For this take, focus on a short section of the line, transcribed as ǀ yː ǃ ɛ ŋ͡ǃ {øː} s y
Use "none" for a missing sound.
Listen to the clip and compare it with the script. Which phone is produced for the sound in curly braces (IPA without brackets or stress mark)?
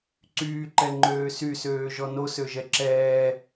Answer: øː